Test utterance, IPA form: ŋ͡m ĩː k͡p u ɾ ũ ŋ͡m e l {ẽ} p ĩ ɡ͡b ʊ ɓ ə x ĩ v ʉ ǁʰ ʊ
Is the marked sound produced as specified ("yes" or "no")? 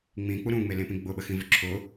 yes